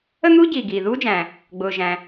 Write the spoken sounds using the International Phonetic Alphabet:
ə˥n̪uː˥ ɟiː˩ɡiː˩ðuː˥d͡ʒæ̃˩ | ɡ͡bʊː˩ʒæ̃˩

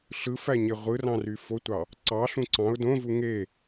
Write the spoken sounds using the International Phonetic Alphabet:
ɬɯfæɲe ʁʷɯrɑ̃ry fotʷɑ | ǀɑɬũ ǀɑ̃ʊ̯ dõvu ŋe

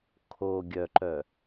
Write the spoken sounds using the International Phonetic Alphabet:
kʰo ɡʲœǃœ

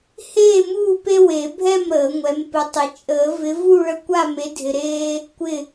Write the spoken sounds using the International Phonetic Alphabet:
heː˥˨muː˥˨pe˦ we˨˩˦bʱɛ˥˨m ɾəː˨˩˦ŋʷɛ˨˦mpɪ˨˦tˤɪ˨˦ t͡ʃʼəː˨˩˦vɪ˨˦vu˥˨ ɭə˦kʷa˥˨me˨˦dʱɪ˨ ɾeː˦ | kʷɪ˥˨

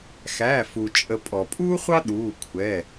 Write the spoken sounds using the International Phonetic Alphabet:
xæ˩˧˩fu˩t͡ʃʼə˨˩˦ pʼɔ˩ pʼuː˥χʷɑ˥ ɗuː˩˧˩kʷʰɛ˩˧˩

